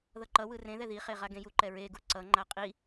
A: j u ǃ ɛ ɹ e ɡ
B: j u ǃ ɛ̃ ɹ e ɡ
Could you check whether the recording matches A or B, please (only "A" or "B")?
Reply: A